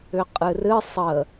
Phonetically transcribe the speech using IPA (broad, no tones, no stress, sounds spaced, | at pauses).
ʏ qʼ ɨ r ɨ sˤ ə